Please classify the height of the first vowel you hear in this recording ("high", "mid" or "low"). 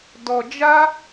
mid